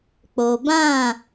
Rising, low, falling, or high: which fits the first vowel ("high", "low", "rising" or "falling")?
low